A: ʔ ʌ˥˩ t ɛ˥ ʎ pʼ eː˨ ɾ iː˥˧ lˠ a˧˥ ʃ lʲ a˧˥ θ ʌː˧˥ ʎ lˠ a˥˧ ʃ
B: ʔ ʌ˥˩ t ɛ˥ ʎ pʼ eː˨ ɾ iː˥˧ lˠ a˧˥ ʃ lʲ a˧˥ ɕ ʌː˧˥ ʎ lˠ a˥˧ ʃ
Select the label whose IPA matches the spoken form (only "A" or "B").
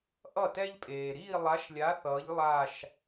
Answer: A